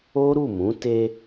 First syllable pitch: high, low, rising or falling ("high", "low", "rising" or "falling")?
high